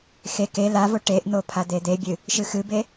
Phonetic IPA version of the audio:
x e k e l a v o ʈ e ʔ n̪ o pʰ a d̪ e d̪ e bʲ ɨ | ʃ ɨ x ɨ b e

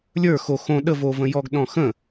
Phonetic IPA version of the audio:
lʲ ə˞ x o x õ ɗ ə v o v ə̃ j ɔ ɡ ɗ ɔ̃ x ə̃

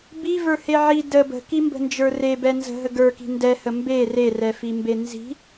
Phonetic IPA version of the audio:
b i v ə˞ h e ʕ i d ə b ə̤ k i m b ə̤ n d͡ʒ ə˞ r e b ɛ n z ə̤ ɦ ə ɡ ə˞ k i̤ n d ɛ h ə m b e r e r ɛ f i m b e n z i̤

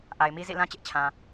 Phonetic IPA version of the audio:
ʔ a˨ ɪ̯ m i˦ z ḭ˦˨ l ã˦ t͡ɕ ɪ˦ ʔ t͡ɕʰ ã˨

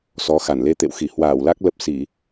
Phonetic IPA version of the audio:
s ɔ˨˦ x a˧˩ n l e˧ t̪ ḛ˧˨ w x i˧˩ h w aː˧˩ w l a˦˥ k̚ l ə˦˥ p̚ s i˧˩˨

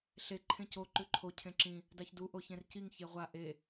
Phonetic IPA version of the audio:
ɬ e ǃʰ ẽ c o ǃ ʉ ǃʰ o cʰ ẽ ǁ ĩ | d a ç d u ʔ o ç ẽ r c i ŋ ç e ʁʷ a ʔ e

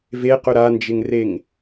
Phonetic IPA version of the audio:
v e q ɵ ɾ a n d͡ʒ ɪ ŋ r e ŋ

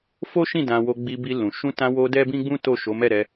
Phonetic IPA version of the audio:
f o˦ ʃ ĩ˦˨ d ã˧ w o˧ ɡ͡b i˧ b i˧ l ũ˨ ʃ ũ˧ t ã˧ w o˧ d ɛ˦ b ĩ˦ ɡ͡b ũ˦ t o˦˨ ʃ o˨˦ m ɛ˦˨ ɾ ɛ˧

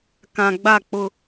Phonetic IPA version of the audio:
k ã˨ ɡ͡b a˦˨ k͡p ʊ˦

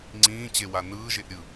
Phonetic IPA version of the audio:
ŋ͡ǀ ĩː t͡ɕ e w a n ɯː ʒ e ʔ ɾʲ ɯ

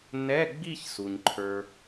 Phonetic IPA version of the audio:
n ɛ˧˥˧ ɡ͡b i˥˧ ç s u˩ ɲ ǃʰ ə˞˩

